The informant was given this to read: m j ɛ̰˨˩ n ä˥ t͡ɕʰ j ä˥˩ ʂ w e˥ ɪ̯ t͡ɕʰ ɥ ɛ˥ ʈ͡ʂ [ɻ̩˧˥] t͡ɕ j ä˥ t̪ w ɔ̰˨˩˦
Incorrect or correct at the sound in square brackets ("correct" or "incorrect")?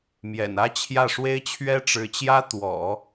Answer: correct